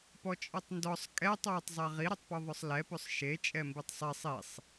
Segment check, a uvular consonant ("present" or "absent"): present